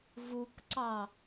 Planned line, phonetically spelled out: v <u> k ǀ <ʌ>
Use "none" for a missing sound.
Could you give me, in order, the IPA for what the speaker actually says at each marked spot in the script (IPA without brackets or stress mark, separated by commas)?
u, ɑ